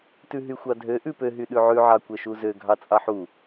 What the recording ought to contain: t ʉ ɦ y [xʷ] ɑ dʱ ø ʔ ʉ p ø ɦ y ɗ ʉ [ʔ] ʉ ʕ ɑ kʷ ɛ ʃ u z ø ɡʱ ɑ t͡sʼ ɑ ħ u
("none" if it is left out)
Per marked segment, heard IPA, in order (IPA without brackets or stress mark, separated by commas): xʷ, ʕ